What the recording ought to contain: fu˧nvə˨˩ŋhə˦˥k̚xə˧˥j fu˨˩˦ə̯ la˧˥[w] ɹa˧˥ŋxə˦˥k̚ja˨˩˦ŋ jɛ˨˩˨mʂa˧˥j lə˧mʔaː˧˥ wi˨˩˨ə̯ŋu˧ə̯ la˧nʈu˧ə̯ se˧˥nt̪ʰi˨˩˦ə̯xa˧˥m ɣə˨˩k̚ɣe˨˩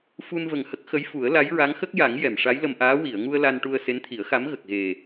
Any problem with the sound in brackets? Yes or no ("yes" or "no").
yes